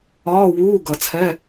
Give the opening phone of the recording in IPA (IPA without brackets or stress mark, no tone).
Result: ɒː